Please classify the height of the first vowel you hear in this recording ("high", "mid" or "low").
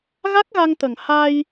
low